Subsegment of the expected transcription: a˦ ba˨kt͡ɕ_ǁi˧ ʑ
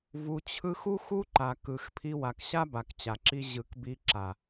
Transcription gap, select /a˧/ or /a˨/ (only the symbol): a˨